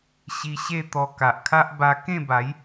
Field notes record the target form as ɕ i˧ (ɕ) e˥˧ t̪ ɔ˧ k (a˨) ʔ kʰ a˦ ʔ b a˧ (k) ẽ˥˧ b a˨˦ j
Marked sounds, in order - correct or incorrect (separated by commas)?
correct, correct, correct